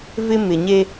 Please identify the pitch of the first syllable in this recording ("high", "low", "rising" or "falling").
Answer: high